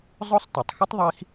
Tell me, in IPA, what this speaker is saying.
zˤ ʊ˦ sˤ t ə˨ tˤ x ə˦ tˤ ðˤ i˧ x

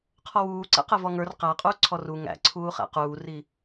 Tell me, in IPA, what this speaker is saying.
qʰ ɔ w uː ǀ ɛ̰ q ɛ v ɔ ŋ ə˞ r q æ qʼ uː ǀʰ ɔ r u ŋ æ̰ ǀʰ uː χ æ̰ q uː r i

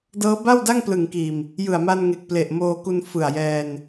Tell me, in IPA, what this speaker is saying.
d ɤː˦˥ b a˥˩ w d a˥˩ ŋ p l ɯ˨˩ ŋ k iː˨˩ m | j ɯ˨˩ a̯ m a˧ n ŋ e˨˩ k̚ p l e˨˩ ʔ m oː˧ k u˧ n f ɯ˨˩ a̯ j ɛː˧ n

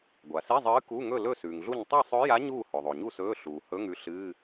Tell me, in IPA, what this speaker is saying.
ɡʷ a˩ s i˧˥˧ zˤ ɨː˧˥ k u˧˥˧ ŋ ɵ˥˨ l ɵ˥˨ s ʉː˩ ŋ ɮ u˥˨ ɲ tˤ e˥˨ sˤ ɵ˧˥ j a˧˥ ɲ uː˥˨ h ɵ˩ ðˤ o˩ ɲ u˥˨ s ɵː˧˥˧ ɬ uː˩ h ɵ˧˥˧ ŋ ʉ˧˥ ɬ ɨː˧˥˧

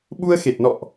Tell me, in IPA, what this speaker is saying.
ɓ u˧ ə̯ x e˨˩ t̚ n ɔ̰˧˨ ʔ

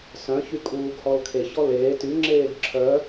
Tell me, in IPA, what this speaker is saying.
s œ̃ ç y kʼ uː ɡ h ɔ l kʰ e ç ɔ l eː t y ŋ͡ǁ eː ɡ ǁʰ œ

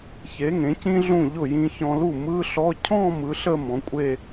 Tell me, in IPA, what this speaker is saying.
ç e˩˥ ŋ ẽ˩˥ c ĩ˥ ɮ ũ˥˩ ʎ ʊ˥˩ j ĩ˧ ç ɔ̃˧ l u˥˩ m ɯ˧˥˧ ɬ ɔ˧˥˧ cʰ ɔ̃˥˧ m ɯ˩˥ ɬ ə˥˧ m ɔ̃˩˥ kʷʼ e˥˧

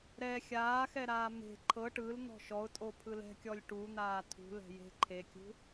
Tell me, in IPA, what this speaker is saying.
ɾ ɛ xʲ aː x ɛ ɾ aː m e̤ ǃʰ ɤ ʈ ɯ l n̪ ɔ̤ ʃ ɔ ʊ̯ tʼ o pʰ ɯ l ɛ̤ kʲ ɔ lʲ ʈ u n̪ aː tʰ ṳ l ɛ̤ j e̤ ǃʰ e kʲ ṳ

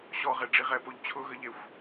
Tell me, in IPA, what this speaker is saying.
ɕ ɔ ʁ e ɖ͡ʐ i ʁ ɛ p o ʎ t͡ɕʰ ʊ ɣ ə ʎ e xʷ

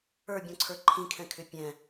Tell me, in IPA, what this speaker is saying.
ə˞ bʲ ɔ̃ ǀʰ ə˞ ǃʰ ĩ kʰ ɛ̃ kʰ ʏ pʲ ɛ̃

